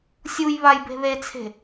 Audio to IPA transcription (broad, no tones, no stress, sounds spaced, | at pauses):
sʲ u j β a j b e̤ ð e t͡sʰ e̤